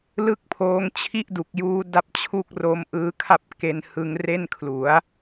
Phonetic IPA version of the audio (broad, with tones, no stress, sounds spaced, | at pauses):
l ɯ˥˩ k̚ pʰ oː˦˥ ŋ t͡ɕʰ i˥˩ ʔ d u˨˩ k̚ j uː˦˥ d a˥˩ p̚ t͡ɕʰ u˥˩ k̚ r o˦˥ m ʔ ɯː˦˥ kʰ a˥˩ p̚ k e˧ n h ɯ˧ ŋ r e˥˩ n kʰ l u˩˦ a̯